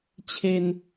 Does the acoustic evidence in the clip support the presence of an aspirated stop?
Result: yes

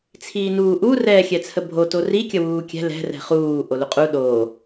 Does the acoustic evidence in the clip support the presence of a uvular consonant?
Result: yes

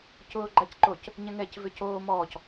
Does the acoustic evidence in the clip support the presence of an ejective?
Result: no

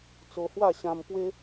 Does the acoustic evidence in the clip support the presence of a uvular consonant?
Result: no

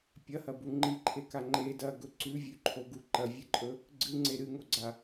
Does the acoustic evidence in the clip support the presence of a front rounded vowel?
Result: no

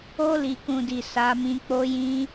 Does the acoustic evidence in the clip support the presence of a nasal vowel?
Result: yes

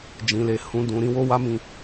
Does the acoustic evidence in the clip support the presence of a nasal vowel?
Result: yes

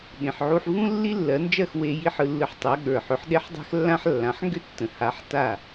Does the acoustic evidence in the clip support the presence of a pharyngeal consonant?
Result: yes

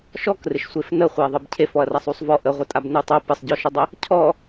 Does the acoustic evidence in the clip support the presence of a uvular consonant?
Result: yes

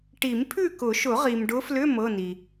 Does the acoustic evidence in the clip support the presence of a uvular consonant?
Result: yes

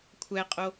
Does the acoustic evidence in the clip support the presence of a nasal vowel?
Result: no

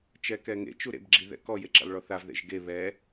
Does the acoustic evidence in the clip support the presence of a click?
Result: yes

